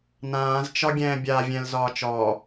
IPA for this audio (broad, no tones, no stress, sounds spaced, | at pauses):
n ãː z t͡ʃ ɒ ɡʲ ɛ̃ː bʲ a vʲ ɛ̃ l z ɒː t͡ʃ ɔ